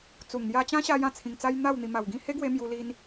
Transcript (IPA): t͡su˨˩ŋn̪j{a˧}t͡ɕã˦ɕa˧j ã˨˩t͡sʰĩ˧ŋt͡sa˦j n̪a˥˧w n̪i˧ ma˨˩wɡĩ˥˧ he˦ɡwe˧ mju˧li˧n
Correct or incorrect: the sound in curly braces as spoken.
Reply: correct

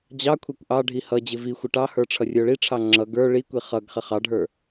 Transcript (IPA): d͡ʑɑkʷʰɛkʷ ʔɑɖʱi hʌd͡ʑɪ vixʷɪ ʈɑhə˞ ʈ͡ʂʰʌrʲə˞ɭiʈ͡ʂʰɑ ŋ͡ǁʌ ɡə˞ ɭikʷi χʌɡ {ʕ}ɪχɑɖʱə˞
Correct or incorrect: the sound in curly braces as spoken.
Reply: incorrect: χ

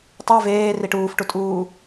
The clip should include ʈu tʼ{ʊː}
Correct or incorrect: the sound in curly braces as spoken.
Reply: incorrect: uː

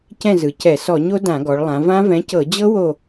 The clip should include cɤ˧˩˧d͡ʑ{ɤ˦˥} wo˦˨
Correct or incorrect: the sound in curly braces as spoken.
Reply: correct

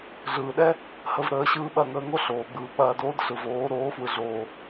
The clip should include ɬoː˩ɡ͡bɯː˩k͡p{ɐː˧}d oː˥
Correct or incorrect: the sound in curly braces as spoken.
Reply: correct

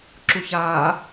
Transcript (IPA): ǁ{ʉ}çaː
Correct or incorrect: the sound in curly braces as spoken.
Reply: incorrect: u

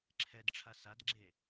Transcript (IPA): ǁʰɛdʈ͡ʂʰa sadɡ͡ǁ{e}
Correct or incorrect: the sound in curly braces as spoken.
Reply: correct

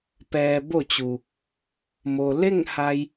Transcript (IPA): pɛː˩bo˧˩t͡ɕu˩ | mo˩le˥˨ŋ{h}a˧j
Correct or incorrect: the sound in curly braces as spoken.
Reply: correct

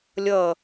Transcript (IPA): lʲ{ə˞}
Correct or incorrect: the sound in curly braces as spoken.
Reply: incorrect: ʌ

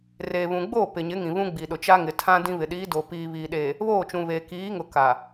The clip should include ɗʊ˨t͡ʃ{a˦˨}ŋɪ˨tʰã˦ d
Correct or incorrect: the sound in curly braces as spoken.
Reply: incorrect: a˦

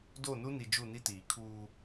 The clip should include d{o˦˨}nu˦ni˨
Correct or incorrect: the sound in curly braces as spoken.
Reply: correct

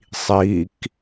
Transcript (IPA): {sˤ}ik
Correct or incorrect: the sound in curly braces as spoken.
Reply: correct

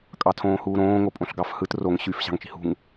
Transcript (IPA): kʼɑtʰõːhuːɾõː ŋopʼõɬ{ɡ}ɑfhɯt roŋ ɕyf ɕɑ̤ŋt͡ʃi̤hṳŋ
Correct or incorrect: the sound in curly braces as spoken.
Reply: correct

